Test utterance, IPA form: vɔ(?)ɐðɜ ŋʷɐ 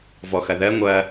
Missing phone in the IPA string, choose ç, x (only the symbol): x